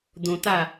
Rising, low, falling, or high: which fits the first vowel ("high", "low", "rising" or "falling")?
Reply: low